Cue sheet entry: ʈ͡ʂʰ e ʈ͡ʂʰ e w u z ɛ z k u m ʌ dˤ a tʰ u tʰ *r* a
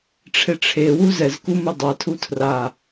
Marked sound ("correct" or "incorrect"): correct